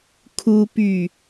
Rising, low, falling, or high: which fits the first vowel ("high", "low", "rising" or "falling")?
high